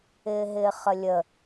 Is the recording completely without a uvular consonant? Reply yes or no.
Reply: no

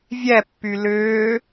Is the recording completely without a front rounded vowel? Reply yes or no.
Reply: no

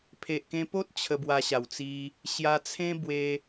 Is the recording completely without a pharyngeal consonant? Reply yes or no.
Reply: yes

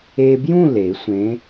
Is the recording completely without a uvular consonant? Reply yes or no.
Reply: yes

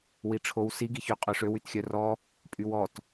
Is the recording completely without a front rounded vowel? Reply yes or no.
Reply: no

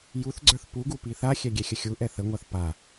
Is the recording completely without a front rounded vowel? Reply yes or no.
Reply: yes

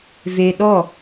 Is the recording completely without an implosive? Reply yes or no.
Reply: no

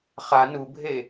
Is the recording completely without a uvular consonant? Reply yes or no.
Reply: no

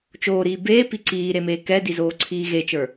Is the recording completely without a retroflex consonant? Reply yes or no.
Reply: yes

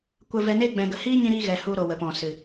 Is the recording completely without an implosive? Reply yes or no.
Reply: yes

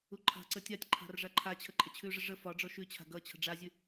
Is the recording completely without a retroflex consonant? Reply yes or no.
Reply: no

